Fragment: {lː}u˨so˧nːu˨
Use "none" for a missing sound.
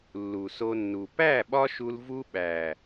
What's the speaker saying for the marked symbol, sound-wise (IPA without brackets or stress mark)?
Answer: lː